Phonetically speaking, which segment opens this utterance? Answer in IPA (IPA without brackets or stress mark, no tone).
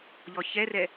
ʎ